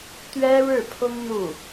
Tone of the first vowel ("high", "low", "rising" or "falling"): high